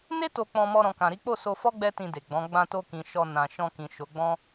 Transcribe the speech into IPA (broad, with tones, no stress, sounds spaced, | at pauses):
n e˦ t o˧ k͡p ɔ̃˧ m ɔ˧ ɾ ɔ̃˨ k ã˨ ɾ i˨˦ k͡p o˦˨ s o˧ f ɔ˦ ɡ͡b ɛ˦ t ĩ˧ d e˨ ɡ͡b ɔ̃˨˦ ɡ͡b ã˧ t o˧ k ĩ˨ ʃ ɔ˧ n ã˨ ʃ ɔ̃˧ k ĩ˨ ʃ o˨˦ ɡ͡b ɔ̃˦